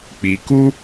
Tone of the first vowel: low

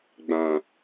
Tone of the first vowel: low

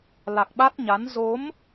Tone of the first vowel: low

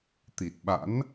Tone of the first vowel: low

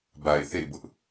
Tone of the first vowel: low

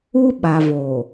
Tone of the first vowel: high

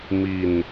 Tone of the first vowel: low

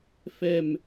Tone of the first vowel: falling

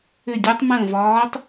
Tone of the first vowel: falling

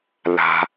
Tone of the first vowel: high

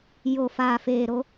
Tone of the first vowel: low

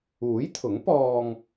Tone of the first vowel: rising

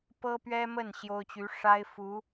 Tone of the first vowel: high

